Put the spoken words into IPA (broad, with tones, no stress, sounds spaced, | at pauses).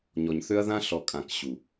ɲ ɔ˨ ɲ θ ø˦ ɐ̯ ð ã˦ ɬ ɔ˨ kʼ ã˨ k ɕ u˨